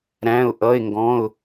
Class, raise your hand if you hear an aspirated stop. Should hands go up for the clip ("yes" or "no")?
no